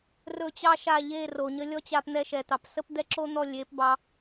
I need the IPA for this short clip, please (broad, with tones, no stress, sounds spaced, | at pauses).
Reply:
r ɵ˦˨ t͡ɕ ɑ˦ ʃ a˦˨ ʎ e˦˨ r o˨ ɲ ə˦ lʲ ɔ˦ t͡ɕ a˧ p n̪ ɛ˧ ʃ ɛ˨ t̪ ɑ˨ p s ə˦ p d̪ ɛ˦ ǁ o˦ n̪ ɔ˦˨ lʲ e˨˦ p b ɑ˧